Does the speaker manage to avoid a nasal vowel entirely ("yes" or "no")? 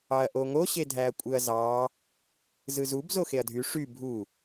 yes